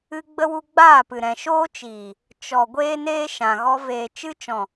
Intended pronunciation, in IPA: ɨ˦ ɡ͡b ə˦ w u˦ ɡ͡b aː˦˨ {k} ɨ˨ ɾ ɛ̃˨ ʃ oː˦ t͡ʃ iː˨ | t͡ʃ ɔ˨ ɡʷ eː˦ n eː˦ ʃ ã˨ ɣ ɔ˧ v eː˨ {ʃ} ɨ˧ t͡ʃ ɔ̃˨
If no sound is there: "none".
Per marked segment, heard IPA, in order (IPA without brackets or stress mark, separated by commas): p, t͡ʃ